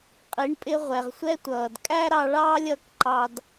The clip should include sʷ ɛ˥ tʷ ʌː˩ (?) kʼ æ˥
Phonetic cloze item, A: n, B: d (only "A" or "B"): B